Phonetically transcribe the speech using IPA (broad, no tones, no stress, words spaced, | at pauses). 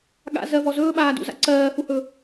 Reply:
ɠa̰ zɜvɔ zɵːɓaːdṵza̰ ǀɜːhuhɵ